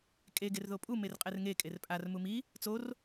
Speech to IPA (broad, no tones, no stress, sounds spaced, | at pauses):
kʼ e ɡ e r ð o pʼ u m e r qʼ ɛ r ŋ e kʼ e r pʼ a r m u m i | t͡s o r